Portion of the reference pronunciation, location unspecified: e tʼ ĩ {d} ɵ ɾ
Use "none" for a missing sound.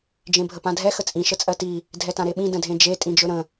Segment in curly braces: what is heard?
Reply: d͡ʒ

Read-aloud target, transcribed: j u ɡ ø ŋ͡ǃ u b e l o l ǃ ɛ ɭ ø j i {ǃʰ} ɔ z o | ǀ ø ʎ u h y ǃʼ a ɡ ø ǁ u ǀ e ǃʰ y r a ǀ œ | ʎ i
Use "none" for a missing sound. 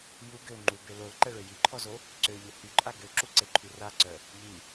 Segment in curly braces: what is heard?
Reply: ǃʰ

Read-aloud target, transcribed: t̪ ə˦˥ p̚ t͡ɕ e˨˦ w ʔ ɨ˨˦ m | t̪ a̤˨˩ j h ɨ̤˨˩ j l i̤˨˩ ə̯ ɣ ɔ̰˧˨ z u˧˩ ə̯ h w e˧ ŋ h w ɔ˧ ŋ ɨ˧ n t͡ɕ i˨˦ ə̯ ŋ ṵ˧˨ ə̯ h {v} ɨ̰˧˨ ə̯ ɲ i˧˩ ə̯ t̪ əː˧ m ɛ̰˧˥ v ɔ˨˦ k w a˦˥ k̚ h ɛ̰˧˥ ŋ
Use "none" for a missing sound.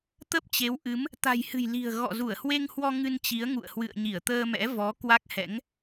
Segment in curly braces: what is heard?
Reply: w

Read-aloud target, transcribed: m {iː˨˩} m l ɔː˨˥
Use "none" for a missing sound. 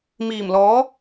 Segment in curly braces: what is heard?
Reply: iː˨˩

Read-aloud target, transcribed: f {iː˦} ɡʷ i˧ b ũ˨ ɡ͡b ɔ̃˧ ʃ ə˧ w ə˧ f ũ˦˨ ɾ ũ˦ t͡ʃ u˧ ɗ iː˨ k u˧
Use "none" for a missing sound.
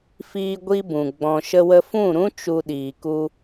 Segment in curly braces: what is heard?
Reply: iː˧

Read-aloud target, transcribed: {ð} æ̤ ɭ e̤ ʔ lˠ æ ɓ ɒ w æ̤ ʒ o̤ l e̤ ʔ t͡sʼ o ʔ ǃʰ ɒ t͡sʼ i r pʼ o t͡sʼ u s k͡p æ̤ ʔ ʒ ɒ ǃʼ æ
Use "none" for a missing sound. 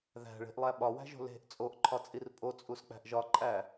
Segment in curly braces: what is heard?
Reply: ð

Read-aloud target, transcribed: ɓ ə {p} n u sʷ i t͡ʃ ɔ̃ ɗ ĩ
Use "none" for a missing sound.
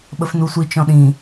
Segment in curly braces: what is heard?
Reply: f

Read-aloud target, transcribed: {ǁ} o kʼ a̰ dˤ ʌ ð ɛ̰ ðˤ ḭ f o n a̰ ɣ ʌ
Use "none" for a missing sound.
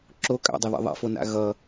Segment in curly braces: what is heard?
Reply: ǁ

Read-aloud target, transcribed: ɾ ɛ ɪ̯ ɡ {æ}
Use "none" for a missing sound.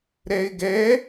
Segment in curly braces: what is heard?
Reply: ɛ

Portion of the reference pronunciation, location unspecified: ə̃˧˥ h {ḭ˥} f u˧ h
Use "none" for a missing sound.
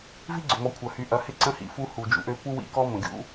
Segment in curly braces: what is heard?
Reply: ḭ˩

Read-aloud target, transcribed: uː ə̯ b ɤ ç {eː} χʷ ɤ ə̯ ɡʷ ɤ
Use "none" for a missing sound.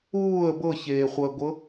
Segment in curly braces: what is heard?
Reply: eː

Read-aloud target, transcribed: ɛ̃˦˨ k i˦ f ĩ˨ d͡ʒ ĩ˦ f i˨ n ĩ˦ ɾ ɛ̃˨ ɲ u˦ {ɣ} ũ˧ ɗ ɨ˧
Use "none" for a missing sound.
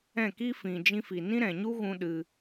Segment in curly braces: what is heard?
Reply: ɣ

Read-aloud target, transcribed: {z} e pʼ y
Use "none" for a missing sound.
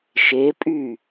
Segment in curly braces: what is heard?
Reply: ʃ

